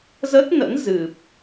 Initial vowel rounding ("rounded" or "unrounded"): unrounded